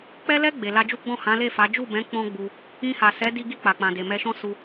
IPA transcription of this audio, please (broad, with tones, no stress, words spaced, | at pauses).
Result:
k͡pɛ˧lɛ˧ ɡ͡be˨la˧d͡ʒu˦ ɡ͡bɔ̃˦˨hã˨˦le˦˨fa˨˦ d͡ʒu˦˨bɛ̃˨˦ k͡pɔ̃˦ɡ͡bu˧ | ĩ˧ha˨ sɛ˨˦di˧ɡi˧ k͡pa˨k͡pã˨ de˨mɛ˧ʃɔ̃˦ su˧